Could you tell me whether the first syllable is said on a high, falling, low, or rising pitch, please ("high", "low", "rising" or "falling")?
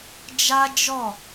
high